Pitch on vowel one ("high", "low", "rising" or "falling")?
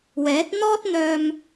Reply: rising